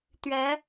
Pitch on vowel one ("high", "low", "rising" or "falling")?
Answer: rising